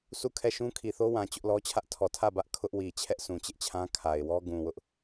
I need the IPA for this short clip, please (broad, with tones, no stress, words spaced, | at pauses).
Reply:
sʰu˦˨kʰɛ˦˨ʃũ˦ kʰi˨θo˦wã˨ t͡ɕʊ˦ʔlɔ˦t͡ɕʰä˦ʔ tʰɔ˨tʰä˦˨ bä˦ʔ kʰʊ˦ʔwi˨ t͡ɕʰɛ˦ʔsʰũ˨t͡ɕɪ˦ʔt͡ɕʰã˦ kʰa˨ɪ̯wɔ˦ ɡũ˨wʊ˦ʔ